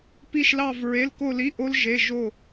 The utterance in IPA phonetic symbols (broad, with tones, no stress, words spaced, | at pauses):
pi˥˧ʃlɑ˥˧v ɹe˧˥˧lko˥˧li˧˥˧ʔo˦˥l ʒe˧˥˧ ʒo˥˧